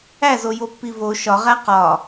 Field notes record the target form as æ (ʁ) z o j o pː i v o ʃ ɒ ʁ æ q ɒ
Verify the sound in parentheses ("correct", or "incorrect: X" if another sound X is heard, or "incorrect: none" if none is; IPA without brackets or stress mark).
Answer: incorrect: none